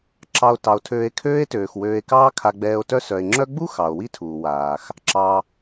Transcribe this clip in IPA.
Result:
ǁɑ˨o̯ tɑ˩o̯tʰøː˨e̯kʰøː˦e̯tøː˩x wøː˨e̯kɑː˦ kʰa˨ɡ͡bɛː˨o̯tœ˦sœ˩e̯ ŋ͡ǁœ˦ɡ͡bu˥ xɑ˩o̯wi˥tʰuː˩ waː˩x | ǁɑ˩

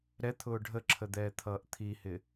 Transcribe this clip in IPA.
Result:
ɾɛt̪ʰʊː ɖʱəǁʰəd̪ɛːt̪ʰʌːʔ t̪ʰihɪ

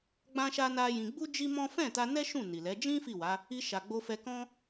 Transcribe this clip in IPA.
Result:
ɡ͡bã˦ʃa˦na˦jĩ˧ ɡ͡bu˦ d͡ʒi˦mɔ̃˦ fɛ̃˦˨ta˧nɛ˦ ʃũ˦˨ni˨lɛ˨˦ d͡ʒĩ˦ fi˦˨wa˨˦ | i˧ ʃa˨ɡ͡bo˧fɛ˧ kɔ̃˦

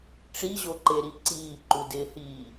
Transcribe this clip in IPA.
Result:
ʈ͡ʂiʑoǃeɾi ǀiːǃudɪːhiː

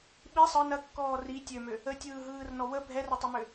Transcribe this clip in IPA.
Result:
ɓi sˤɯ nɐkːɔː ri tʲømø | ətʲɯːɦɯːrnɔ wə bʱɛrətˤɯmø

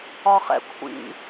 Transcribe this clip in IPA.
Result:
ɒχɛ̰kʷʰḭ

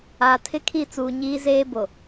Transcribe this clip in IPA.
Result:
aː˨tʰɪ˦ kʰi˦˨t͡suː˨ɲiː˦ zeː˦bo˨

